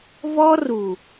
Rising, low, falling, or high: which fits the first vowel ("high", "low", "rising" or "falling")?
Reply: high